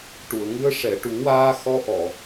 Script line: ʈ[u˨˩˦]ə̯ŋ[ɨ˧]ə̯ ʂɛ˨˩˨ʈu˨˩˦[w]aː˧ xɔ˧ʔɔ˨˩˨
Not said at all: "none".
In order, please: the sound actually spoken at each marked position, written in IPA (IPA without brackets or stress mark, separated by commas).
u˨˩˨, ɨ˧, w